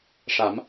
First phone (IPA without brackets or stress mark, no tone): ʂ